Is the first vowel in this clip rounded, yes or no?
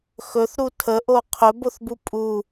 yes